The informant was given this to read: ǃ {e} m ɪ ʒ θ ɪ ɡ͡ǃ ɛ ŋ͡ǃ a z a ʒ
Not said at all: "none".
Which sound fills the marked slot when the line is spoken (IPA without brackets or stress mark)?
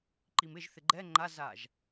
i